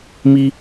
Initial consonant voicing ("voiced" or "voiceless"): voiced